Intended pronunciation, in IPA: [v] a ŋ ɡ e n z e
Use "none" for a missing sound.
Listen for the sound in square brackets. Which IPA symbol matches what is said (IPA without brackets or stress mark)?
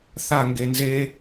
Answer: θ